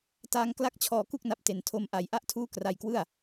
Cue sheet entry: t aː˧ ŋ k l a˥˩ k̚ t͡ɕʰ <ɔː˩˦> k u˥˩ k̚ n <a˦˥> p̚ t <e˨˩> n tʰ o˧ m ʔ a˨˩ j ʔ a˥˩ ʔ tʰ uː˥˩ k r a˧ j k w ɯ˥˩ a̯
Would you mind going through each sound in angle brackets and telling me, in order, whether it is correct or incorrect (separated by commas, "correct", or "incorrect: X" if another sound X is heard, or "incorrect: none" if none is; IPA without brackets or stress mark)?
incorrect: ɔː˧, correct, correct